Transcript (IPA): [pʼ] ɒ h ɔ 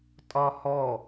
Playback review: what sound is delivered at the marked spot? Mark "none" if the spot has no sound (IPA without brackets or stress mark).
tʼ